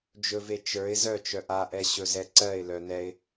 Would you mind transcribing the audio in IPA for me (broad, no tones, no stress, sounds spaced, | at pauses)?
d͡ʒ ɵ v e t͡ʃ ə˞ ɪ̯ z œ t͡ʃ œ ʔ a ʔ ɛ ɕ ɵ z ɛ ǀ ɜ ɪ̯ l œ n ɛ ɪ̯